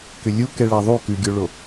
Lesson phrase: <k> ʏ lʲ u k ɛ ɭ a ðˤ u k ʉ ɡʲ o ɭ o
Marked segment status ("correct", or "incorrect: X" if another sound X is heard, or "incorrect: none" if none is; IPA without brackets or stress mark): correct